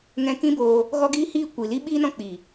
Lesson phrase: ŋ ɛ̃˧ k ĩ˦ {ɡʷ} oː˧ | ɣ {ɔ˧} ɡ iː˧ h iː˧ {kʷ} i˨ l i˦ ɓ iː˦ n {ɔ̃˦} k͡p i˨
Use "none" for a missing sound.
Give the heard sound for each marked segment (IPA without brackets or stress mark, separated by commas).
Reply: b, ɔ˧, kʷ, ɔ̃˦